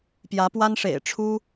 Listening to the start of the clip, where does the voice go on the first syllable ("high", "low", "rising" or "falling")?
rising